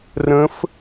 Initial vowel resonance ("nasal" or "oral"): nasal